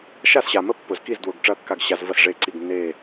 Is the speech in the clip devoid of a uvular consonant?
yes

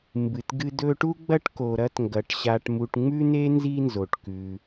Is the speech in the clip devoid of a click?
yes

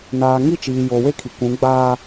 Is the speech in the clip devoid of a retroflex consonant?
yes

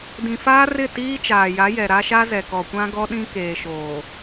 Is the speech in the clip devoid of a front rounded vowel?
yes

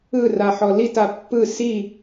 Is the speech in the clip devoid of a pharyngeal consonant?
no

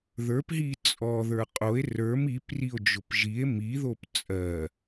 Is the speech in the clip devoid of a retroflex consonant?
yes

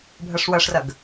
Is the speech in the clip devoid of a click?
yes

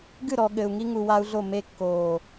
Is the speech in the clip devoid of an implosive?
no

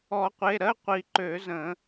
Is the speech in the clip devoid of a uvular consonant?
no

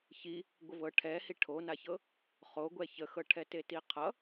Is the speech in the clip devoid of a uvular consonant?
no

